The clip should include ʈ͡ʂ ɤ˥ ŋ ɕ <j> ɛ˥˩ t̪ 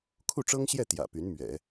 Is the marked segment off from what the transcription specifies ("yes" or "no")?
no